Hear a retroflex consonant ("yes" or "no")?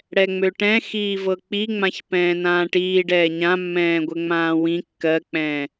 yes